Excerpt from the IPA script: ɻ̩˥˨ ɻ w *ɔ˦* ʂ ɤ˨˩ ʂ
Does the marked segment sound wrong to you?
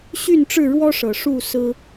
no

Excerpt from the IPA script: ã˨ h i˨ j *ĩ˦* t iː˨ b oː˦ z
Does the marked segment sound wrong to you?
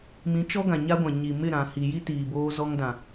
yes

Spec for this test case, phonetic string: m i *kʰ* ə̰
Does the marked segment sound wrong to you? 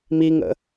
yes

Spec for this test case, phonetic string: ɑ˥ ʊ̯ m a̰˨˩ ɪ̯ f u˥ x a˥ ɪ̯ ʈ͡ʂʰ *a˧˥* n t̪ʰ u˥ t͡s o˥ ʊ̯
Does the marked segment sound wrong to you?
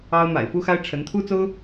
yes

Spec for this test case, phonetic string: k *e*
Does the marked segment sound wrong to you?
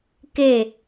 no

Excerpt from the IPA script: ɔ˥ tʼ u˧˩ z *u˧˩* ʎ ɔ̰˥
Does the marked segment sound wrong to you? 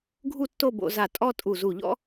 no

